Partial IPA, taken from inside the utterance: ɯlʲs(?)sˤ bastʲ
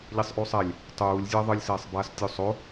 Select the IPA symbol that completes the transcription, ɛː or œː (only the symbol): ɛː